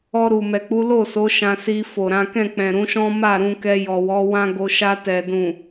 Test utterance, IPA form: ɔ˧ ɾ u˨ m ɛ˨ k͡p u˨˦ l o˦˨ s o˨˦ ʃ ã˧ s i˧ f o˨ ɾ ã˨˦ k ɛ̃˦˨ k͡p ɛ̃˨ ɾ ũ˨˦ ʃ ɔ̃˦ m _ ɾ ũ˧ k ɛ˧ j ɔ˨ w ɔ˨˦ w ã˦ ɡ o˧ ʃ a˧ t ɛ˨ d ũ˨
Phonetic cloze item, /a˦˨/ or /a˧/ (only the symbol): a˦˨